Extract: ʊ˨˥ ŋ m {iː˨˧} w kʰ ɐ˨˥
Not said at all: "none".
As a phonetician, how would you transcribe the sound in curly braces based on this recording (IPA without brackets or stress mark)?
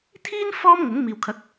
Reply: iː˨